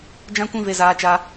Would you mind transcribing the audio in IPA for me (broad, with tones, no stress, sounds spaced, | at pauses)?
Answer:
d͡ʒ ã˦ kʷ ĩ˦ v e˧ z aː˧ t͡ʃ a˧